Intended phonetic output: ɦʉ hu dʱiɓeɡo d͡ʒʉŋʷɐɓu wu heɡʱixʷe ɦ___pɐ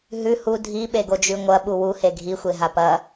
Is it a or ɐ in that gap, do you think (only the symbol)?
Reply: a